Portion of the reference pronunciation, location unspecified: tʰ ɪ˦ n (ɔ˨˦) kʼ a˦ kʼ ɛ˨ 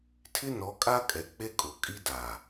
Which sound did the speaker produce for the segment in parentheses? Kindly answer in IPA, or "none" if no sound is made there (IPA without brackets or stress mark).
ɔ˨˦